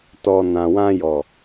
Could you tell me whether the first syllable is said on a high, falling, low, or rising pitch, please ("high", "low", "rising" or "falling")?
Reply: low